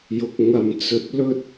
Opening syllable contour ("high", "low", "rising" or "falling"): low